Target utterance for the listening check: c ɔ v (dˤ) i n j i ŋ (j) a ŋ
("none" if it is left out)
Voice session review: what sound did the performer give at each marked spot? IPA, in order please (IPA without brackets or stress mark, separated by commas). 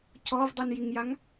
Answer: dˤ, j